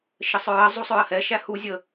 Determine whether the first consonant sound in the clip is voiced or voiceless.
voiceless